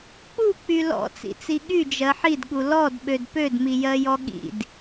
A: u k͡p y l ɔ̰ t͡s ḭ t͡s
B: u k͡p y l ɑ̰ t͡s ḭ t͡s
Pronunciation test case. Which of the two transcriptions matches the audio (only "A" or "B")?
A